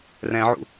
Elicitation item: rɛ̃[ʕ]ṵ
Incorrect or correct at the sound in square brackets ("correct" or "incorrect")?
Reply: correct